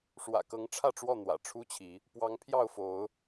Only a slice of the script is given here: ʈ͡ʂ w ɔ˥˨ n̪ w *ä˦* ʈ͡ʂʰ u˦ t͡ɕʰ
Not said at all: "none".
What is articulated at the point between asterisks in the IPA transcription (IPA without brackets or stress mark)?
ä̰˨˩